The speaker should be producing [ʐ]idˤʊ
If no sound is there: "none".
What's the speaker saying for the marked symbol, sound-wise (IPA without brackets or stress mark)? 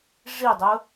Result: ʐ